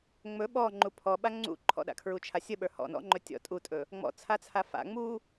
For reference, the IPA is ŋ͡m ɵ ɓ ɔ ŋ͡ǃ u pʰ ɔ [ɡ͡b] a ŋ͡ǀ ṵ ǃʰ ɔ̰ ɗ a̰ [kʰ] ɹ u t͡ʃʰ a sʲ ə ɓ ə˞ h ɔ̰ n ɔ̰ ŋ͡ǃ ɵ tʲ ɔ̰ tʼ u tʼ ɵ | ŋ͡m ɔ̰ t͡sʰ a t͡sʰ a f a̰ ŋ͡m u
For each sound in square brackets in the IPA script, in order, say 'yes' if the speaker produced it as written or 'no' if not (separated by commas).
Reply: no, yes